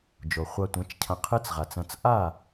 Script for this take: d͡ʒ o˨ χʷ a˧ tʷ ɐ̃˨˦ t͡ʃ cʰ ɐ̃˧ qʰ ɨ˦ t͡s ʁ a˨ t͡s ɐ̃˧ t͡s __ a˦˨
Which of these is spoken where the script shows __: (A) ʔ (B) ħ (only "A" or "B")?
A